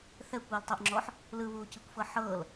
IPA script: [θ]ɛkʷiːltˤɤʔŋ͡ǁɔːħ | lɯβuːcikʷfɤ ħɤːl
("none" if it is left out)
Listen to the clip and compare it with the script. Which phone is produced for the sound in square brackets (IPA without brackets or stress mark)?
θ